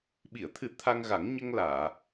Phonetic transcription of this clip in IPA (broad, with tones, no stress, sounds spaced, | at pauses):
ɓ i˨˩˨ ə̯ t̪ʰ ɨ˨˩˦ t̪ʰ a˧ ŋ ɣ a˨˩˦ ŋ ɲ ə˧ ŋ l aː˨˩˨